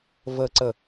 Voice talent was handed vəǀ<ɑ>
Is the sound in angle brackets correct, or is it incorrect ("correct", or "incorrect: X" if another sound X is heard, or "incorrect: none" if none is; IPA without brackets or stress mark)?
incorrect: ə